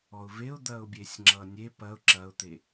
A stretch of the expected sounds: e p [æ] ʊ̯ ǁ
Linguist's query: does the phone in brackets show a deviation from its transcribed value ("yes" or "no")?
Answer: yes